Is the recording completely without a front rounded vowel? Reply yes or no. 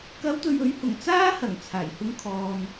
yes